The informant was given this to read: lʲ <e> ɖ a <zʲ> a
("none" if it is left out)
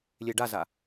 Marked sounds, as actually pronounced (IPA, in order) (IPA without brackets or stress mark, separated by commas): e, z